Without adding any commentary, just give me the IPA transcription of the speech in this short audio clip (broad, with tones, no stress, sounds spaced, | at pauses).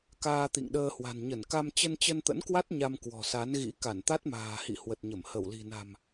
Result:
k aː˧ t̪ ḭ˧˨ ŋ ɗ əː˧ h w a̤˨˩ n ɲ ə˧˩ n k a˧ m t͡ɕ ə˧ n t͡ɕ ə˧ n t̪ ə̰˧˥ n k w a˦˥ t̚ ɲ a˧ m k w ɔ̤˨˩ s a˨˦ n ɣ ḭ˧˥ k a˧˩ n t̪ a˦˥ t̚ m a̤ː˨˩ h ḭ˧˨ h w ə˨˩ t̚ ɲ ə˧˩ m h ə˧˩ w l i̤˨˩ n a̤˨˩ m